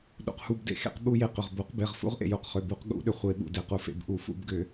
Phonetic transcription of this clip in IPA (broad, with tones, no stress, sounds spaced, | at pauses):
ɗ ṵ˩ q h u˩˧˩ b d ḛ˩˧˩ x ḛ˧˩˧ q ɓ u˧˩˧ j e˩˧˩ q ʏ˩ ʁ b o˧˩˧ q b e˩˧˩ ʁ f ṵ˧˩˧ ʁ ʔ ḛ˩ j u˩˧˩ q χ ʏ˩˧˩ b u˧˩˧ q ɠ ṵ˧˩˧ ɗ ʏ˩ χʷ e˧˩˧ ɓ ṵ˩˧˩ d e˩˧˩ q u˧˩˧ f ḛ˩˧˩ b ʔ u˧˩˧ f ṵ˧˩˧ b ɡ ʏ˧˩˧